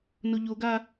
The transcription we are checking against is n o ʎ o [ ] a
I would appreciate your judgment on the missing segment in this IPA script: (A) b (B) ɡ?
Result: B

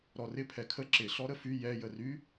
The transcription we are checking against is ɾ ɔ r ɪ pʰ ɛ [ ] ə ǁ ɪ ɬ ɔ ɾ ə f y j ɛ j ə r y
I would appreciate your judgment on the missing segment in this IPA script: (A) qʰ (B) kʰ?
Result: B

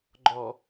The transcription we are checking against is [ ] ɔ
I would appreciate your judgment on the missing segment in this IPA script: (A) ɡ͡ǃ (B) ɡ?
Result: A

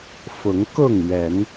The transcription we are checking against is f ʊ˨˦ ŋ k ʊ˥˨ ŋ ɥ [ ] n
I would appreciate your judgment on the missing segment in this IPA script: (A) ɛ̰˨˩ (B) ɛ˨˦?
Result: B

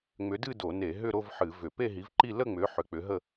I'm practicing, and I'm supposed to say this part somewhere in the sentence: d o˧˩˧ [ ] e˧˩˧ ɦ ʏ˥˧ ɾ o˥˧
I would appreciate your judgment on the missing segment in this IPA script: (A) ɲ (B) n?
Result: B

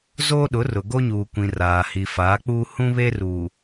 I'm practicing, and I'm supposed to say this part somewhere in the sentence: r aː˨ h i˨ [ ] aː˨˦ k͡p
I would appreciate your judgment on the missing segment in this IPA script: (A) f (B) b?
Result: A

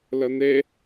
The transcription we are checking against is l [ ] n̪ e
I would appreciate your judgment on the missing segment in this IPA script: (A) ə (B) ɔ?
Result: A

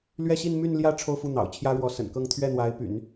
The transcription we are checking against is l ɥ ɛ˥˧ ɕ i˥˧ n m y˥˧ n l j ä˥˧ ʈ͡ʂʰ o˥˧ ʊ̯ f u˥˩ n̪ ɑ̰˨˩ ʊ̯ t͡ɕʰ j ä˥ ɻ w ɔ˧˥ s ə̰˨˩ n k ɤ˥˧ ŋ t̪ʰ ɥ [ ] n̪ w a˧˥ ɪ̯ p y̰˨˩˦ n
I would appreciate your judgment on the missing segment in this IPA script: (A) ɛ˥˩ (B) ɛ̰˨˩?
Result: A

